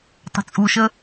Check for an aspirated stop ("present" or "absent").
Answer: absent